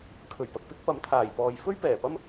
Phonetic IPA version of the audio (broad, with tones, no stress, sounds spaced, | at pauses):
kʰ ɵ˨˩ ɥ p ɐ˨ k̚ p ɪ˥ k̚ p ɐ˨˥ m t̪ʰ aː˨˩ j p ɔː˨ j f ɵ˥ ɥ p ɛː˨˩ p ɐ˥ m